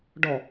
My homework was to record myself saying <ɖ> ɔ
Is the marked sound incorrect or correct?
correct